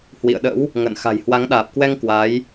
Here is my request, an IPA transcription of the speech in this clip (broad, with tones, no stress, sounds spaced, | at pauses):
h w ḭ˧˨ ə̯ ɗ ə̰˧˥ w | ŋ ə̰ː˧˨ n x a̤˨˩ j h w a˨˦ ŋ ɗ aː˨˩ p̚ k w ɛ˧ ŋ k w a˨˦ j